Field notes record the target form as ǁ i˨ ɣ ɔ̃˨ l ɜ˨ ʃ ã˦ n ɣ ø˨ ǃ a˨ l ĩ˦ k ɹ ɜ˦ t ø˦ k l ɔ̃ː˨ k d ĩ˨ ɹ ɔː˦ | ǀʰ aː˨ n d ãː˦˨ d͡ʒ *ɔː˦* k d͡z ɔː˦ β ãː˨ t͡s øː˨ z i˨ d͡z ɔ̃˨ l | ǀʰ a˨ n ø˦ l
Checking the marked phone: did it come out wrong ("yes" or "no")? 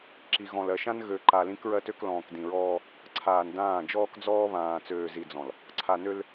no